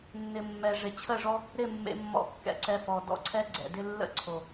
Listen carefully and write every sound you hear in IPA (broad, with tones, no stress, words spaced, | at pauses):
nːɪ˨mːɛ˨ ʐɪ˨t͡ɕʰə˦˨ʐɔ˦ | ɾɪ˦˨ mːḛ˧mːɔ̰˧kːɛ̰˧ǀɛ˧ fɔ˨ dɔ̰˦ǀʰɛ˦ ɡ͡ǀɛ̰˨dɪ˦ lːə̰˦ǀʰo˨